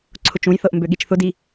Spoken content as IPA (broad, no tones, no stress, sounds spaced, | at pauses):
ǀʰ ʊ t͡ʃ ũ j θ ɤ ʔ m b ø ɠ i t͡ʃ θ ʊ d i